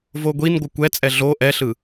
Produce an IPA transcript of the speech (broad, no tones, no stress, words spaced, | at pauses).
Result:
voɡʷin ɡʷɯkʷɛt͡sʼɛ ɮo ʔɛɬɯ